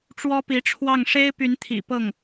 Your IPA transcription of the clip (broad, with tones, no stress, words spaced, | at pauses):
ʈ͡ʂwɔ˥pi˧˥ʈ͡ʂʰwɑ˥˩ŋ ʂe˥ɪ̯py˧˥nt̪ʰḭ˨˩ pɤ˥˩ŋ